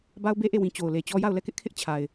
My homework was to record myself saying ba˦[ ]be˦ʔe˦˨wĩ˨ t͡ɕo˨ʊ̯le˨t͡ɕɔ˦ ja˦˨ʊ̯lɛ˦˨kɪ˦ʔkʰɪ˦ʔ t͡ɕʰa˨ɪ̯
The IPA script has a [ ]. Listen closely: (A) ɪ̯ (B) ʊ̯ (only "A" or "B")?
B